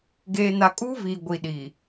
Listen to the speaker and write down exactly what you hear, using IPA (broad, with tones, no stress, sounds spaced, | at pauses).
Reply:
ɡ eː˨ n a˨ kʼ uː˦ v iː˨ ɡʷ i˨ ɗ iː˨